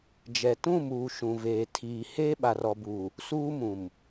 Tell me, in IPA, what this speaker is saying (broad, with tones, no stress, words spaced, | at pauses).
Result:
d͡ʒɛ˨tũ˦˨muː˨ ʃũ˨veː˨ tʰiː˨ heː˦ɓa˨rɔ˨buː˨ | suː˦mũ˨m